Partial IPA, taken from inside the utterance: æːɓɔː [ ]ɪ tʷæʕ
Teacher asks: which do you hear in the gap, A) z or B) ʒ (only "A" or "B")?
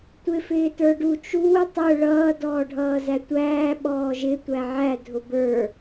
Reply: B